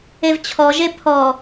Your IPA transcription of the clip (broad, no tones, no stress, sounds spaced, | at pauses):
e v t͡ɕʰ ɔ ʒ e pʰ ɔ